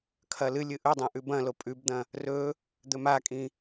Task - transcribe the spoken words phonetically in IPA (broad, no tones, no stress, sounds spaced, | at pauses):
kʰ ɐ l ɨ lʲ ɨ ʔ ɵ dˤ ẽ ʔ ʉ b ɐ̃ l o pʼ ʉ b d̪ ɐ̃ | r ɵ | d̪ ɵ m a kʼ ĩ